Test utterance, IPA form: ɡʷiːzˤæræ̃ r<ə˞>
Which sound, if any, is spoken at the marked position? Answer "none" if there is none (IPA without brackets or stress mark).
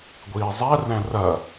ɐ